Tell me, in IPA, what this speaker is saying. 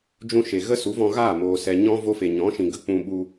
d͡ʒũ˧ʃe˨ ɣə˦su˨˦vɔ̃˧ɣaː˦˨ moː˨sɛ˨ ɲɔ̃˦ vo˧fe˨ɲɔ̃˨˦ʃĩ˨ ɡə˦ k͡pũ˧ɓu˧

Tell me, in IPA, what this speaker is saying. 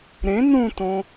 ɾẽ nũtõ

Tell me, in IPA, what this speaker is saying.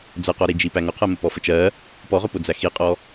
d͡zəqɔɾid͡ʒi pæŋʊqʰɜ məpɔfət͡ʃɜ | pɔʁʊpʊd͡zæ xiqʼɔ

